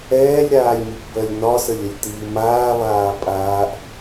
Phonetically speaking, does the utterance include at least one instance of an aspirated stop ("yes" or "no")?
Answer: no